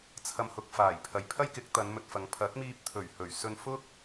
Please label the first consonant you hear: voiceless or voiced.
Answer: voiceless